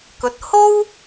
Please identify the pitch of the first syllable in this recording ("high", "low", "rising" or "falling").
rising